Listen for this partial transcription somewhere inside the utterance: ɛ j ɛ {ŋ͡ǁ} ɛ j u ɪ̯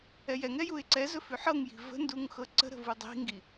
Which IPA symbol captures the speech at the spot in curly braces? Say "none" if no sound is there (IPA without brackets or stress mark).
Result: ŋ